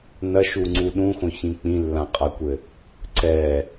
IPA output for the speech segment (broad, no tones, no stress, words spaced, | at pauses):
nɐʃuŋ͡ǀu ɗũxõçĩ k͡pĩlːãqʼakʷɘ | ǀɛ